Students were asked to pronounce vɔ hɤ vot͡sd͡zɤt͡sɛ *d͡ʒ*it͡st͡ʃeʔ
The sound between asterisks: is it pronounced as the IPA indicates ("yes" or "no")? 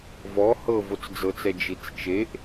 yes